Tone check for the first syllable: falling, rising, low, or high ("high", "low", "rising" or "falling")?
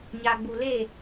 low